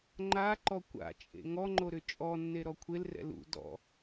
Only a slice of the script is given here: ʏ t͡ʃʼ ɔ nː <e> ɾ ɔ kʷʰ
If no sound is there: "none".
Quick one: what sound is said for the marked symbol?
e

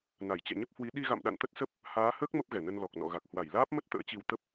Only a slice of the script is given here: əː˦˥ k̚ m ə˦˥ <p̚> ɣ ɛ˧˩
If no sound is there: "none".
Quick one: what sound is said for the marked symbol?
p̚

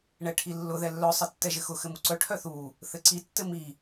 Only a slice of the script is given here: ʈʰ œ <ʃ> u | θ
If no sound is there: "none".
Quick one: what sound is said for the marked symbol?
θ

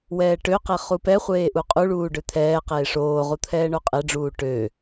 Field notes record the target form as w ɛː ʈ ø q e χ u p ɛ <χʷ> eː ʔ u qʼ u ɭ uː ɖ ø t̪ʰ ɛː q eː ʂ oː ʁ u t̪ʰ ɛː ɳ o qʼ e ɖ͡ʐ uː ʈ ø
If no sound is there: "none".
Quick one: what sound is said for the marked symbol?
χʷ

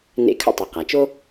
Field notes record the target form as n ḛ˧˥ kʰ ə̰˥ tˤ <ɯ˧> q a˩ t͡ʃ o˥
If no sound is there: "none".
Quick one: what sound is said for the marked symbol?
ɯ˩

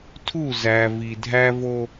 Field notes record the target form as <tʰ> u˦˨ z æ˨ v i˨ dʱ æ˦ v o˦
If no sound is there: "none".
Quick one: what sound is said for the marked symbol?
tʰ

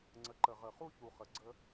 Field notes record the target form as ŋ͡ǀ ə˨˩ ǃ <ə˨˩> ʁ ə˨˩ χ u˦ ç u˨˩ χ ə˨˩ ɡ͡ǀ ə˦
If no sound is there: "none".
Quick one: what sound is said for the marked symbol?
ə˨˩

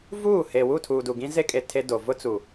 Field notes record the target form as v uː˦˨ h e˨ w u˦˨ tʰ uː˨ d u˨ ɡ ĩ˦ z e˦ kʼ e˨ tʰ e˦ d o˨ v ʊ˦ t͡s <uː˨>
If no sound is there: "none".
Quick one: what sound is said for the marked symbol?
u˨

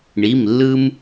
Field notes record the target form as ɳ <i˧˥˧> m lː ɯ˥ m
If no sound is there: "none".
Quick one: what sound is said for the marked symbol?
i˧˥˧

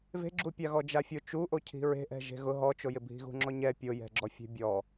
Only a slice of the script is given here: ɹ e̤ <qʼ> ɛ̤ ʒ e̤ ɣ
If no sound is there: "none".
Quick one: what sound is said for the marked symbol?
ʔ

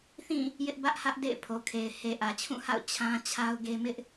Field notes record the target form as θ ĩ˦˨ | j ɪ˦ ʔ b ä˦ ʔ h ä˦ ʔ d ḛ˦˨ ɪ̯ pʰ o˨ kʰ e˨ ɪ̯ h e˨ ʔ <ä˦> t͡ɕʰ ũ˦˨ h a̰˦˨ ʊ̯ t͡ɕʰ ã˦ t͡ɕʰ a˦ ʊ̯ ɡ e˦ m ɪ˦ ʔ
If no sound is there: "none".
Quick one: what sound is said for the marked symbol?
ä˨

